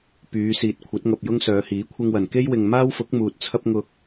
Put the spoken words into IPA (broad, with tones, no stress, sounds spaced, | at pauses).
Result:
p yː˨˧ s iː˨ t̚ kʷʰ ɐ˨˥ t̚ ŋ ɐ˨ p̚ j ʊ˥ ŋ s œː˨˧ h iː˨˥ kʷʰ ɪ˧ ŋ w ɐ˨˩ n k e˥ j w ɪ˨ ŋ m aː˥ w f ʊ˨˥ k̚ m uː˨ t̚ t͡sʰ ɐ˥ p̚ ŋ ʊ˧ k̚